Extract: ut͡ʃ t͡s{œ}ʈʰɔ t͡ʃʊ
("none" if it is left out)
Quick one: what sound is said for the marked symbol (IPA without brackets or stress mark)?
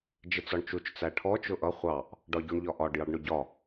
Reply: æ